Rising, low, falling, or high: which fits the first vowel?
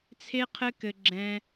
high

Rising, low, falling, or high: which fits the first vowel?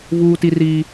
high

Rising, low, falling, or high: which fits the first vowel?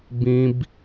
high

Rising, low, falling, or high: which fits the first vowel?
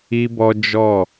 high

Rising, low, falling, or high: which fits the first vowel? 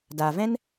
low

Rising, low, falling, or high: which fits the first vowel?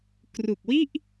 low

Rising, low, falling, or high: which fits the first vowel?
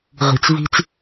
low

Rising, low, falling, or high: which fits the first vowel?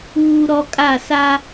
high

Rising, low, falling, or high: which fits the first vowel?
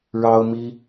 high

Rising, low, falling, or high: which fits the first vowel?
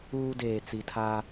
high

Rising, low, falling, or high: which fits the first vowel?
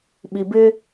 low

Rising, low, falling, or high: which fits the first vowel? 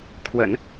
low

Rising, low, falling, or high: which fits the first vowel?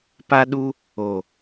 high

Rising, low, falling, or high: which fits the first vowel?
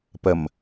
low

